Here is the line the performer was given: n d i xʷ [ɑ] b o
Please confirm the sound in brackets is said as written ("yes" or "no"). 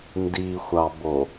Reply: yes